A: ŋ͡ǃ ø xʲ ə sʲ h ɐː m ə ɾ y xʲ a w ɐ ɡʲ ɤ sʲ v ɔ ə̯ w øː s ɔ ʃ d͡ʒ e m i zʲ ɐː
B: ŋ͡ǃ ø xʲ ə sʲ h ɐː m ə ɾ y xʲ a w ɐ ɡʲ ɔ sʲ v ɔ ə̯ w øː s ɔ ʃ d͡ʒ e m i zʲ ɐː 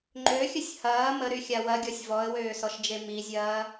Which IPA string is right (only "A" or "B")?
B